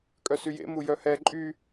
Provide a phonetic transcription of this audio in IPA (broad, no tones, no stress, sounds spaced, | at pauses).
kʼ œ s y j ḛ m u j œ h ɛ ǃʼ y